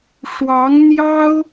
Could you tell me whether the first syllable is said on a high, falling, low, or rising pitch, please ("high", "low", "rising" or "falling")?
rising